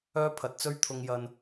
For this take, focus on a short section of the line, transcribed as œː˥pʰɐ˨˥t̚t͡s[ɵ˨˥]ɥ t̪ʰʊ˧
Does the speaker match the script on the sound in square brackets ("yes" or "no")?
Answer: no